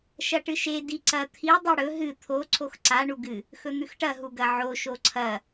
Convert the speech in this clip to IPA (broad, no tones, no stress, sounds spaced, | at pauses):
ʃ ɐ ʈ ɨ ʃ e d i ǀ ɐ t̪ʰ i dˤ i ɽ ɵ ɦ ɨ t̪ʰ o ǀʰ o x ǀ a ɳ u ɡ ɨ | x ɵ n̪ ʉ x ʈ ɐ ɦ u ɡ ɐ ʕ o ʃ o ǀʰ ɐ